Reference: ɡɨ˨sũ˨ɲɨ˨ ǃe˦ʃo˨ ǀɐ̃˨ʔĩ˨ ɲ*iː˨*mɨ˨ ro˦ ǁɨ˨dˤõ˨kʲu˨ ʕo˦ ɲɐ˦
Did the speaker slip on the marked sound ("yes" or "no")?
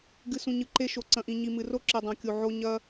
yes